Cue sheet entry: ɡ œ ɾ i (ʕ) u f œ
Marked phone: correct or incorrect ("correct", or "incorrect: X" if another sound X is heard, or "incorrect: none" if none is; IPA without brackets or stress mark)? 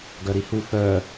incorrect: h